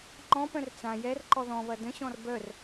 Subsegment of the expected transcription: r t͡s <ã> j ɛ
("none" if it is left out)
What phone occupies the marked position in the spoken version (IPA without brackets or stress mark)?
ã